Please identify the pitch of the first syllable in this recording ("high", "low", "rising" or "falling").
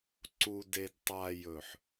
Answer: low